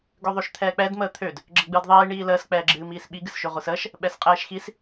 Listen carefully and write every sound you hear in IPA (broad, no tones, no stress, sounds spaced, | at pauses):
ɡ ø ðˤ ø ʃ t̪ʰ ɛː k͡p ɛ d m əː t̪ʰ ø d | ɡ͡ǁ ə ɡ͡b ɨː d ðˤ iː ɳ iː l əː s k͡p ɛː ɡ͡ǁ ɨː m iː s ɓ i ɡ ɨ s ʃ ø ʁʷ ɨ s əː ʃ | ɓ ɛ s qʼ ɛː ʃ x i s